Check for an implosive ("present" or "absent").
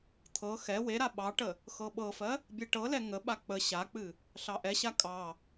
present